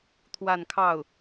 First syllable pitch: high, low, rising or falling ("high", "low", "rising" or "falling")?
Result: falling